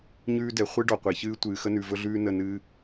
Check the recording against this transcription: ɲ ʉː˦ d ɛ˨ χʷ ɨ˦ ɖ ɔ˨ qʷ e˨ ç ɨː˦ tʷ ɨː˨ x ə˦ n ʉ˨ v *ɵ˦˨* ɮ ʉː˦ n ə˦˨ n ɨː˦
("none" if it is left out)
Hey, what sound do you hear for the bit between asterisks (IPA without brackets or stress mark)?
ɵ˦